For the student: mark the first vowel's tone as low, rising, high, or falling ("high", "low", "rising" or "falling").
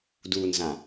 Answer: low